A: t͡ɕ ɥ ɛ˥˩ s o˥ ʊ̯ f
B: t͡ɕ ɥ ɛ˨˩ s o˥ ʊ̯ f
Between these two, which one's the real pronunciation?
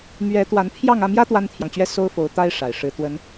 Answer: A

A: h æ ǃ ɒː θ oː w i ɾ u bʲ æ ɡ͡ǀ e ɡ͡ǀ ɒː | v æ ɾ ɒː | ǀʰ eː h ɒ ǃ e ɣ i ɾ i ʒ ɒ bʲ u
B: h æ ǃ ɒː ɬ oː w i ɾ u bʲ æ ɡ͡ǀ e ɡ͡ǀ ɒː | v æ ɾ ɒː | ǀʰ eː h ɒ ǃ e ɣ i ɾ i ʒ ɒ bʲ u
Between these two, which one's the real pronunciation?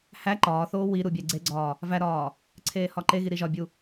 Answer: A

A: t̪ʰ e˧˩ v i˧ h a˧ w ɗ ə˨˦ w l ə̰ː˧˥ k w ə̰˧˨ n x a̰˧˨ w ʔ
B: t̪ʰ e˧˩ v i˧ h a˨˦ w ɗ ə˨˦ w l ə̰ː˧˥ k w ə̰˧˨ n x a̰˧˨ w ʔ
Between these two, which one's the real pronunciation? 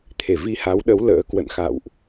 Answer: B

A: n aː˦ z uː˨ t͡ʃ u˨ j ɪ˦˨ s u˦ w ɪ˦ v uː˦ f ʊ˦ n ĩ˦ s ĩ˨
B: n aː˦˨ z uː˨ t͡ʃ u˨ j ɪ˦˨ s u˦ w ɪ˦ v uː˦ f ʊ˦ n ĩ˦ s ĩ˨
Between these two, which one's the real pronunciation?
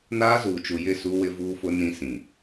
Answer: A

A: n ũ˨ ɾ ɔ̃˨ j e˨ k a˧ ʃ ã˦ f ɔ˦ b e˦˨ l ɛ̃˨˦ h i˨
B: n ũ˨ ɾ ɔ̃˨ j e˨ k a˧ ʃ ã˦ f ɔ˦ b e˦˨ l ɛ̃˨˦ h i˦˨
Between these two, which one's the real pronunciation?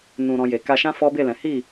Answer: B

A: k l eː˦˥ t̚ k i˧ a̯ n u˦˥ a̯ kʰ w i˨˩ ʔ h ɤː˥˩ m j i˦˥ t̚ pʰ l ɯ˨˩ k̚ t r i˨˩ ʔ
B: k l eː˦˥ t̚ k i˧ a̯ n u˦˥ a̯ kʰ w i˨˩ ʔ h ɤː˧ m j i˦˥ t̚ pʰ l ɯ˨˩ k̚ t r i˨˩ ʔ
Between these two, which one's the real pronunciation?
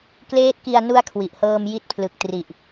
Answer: B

